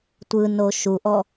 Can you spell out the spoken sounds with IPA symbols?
tʷ ɯ n o ʃ u ʔ ɔ

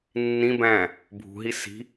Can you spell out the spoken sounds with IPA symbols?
nː ĩ b æ̃ | bʱ ṳ ɦ i s i̤

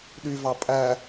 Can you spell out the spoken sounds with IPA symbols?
ɗ y v ɑ pʼ æ

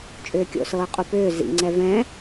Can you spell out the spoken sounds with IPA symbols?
t͡ʃʼ ʏː kʲ o̰ s ɤː qʼ u p ʏː z ḭ ŋ͡ǀ ɛ v ɛ̃

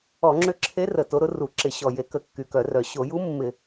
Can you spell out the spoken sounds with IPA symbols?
ɔ˧˩˧ ŋ͡ǁ ʏ˧˥ ǁʰ e˧˥ r ə˨˩ t o˧˥ ɾ ʊ˧˥ r u˧˩˧ ǁ ɪ˧˩˧ ɕ ɔ˨˩ j e˧˩˧ k ə˧˩˧ kː y˨˩ k œ˧˩˧ r œ˨˩ ɕ o˧˩˧ j u˧˥ mː ɪ˧˩˧

